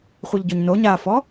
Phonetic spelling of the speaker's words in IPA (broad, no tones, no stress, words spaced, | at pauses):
χʷiʎɟoɲno ɲafɔ